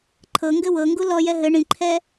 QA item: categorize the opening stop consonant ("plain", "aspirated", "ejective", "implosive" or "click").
click